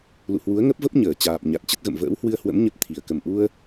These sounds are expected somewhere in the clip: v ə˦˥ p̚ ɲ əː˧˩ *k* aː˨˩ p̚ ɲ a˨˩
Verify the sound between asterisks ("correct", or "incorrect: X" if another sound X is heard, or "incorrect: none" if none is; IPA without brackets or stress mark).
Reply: incorrect: t͡ɕ